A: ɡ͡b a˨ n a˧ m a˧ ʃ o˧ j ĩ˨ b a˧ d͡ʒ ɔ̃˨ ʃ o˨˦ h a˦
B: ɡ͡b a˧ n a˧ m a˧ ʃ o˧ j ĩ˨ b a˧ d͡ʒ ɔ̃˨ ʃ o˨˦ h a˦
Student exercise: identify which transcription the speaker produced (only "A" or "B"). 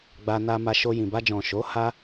B